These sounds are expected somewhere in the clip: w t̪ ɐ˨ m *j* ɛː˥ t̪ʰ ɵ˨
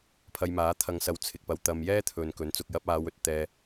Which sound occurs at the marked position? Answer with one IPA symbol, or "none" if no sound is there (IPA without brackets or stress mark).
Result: j